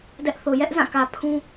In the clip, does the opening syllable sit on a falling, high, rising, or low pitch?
high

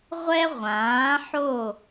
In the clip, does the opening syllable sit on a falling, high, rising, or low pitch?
high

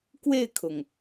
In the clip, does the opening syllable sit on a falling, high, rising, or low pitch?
falling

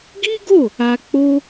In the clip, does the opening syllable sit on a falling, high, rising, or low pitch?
high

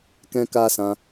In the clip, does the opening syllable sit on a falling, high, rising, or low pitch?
high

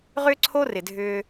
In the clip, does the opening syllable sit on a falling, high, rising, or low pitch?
high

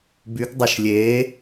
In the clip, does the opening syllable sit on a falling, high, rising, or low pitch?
rising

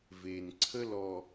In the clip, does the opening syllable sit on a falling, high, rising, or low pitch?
low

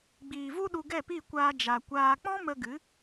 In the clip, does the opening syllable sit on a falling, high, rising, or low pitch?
low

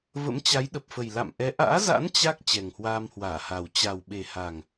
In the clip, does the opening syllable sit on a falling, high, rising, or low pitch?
rising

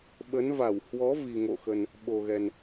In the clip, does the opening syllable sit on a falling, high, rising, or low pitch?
rising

